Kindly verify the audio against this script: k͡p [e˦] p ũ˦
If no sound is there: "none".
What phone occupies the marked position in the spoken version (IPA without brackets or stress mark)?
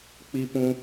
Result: i˦